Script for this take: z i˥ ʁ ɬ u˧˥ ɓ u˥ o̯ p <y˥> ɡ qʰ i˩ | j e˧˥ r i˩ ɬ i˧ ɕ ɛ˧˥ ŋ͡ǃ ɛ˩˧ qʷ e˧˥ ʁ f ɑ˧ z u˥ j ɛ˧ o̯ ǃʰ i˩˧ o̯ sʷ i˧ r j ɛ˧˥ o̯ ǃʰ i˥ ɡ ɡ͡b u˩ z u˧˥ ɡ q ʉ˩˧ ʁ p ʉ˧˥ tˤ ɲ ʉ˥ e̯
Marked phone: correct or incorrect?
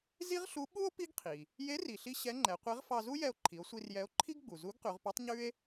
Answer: incorrect